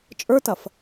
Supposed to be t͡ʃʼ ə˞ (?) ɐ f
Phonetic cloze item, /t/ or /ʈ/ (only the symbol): t